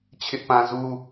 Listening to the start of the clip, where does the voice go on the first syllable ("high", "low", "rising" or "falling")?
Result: high